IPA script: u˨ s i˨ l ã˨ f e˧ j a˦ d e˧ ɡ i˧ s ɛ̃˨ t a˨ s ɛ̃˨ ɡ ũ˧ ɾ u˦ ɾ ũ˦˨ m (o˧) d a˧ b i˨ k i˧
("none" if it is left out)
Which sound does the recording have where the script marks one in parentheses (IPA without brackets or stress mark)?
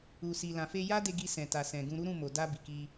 o˨